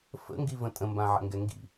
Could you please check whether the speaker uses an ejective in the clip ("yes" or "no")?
yes